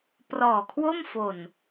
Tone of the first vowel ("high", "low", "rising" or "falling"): low